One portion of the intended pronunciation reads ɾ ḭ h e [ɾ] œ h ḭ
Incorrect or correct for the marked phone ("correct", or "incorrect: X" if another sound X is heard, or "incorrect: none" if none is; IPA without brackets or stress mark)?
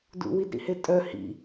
incorrect: tʼ